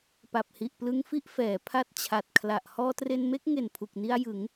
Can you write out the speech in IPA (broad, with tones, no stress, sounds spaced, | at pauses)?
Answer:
p a˨˩ p̚ h i˨˩ ʔ p l ɯ˧ ŋ f i˥˩ ʔ f ɛː˩˦ pʰ a˦˥ t̚ t͡ɕʰ a˨˩ t̚ kʰ l a˨˩ ʔ h ɔː˧ t r e˧ n m e˥˩ k̚ ŋ e˨˩ n pʰ u˨˩ k̚ n i˧ a̯ j ɯ˩˦ ŋ